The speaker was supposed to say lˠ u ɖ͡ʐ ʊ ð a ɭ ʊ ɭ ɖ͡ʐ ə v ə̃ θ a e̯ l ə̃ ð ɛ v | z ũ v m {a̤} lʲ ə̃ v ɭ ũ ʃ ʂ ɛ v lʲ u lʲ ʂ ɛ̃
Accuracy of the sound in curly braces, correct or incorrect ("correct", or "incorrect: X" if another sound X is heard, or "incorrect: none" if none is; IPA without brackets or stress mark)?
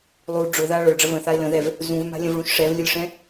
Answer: correct